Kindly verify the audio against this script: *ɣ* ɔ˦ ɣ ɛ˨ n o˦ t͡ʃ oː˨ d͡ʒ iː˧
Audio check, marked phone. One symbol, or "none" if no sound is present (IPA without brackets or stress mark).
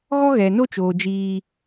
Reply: ɣ